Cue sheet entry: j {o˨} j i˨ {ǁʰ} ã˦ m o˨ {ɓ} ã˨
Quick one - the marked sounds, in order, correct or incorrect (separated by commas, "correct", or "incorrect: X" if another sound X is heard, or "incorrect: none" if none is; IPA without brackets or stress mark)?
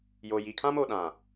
correct, incorrect: kʰ, incorrect: ɗ